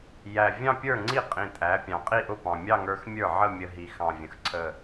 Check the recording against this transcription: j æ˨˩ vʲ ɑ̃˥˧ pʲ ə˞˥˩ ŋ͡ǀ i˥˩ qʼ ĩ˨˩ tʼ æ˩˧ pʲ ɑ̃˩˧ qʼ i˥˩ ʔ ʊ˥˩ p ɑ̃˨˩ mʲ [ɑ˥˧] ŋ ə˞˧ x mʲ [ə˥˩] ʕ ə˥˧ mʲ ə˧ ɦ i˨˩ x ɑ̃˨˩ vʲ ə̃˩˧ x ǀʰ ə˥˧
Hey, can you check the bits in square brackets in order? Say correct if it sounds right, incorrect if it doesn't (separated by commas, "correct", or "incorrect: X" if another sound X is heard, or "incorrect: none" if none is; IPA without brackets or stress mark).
correct, incorrect: ə˞˥˩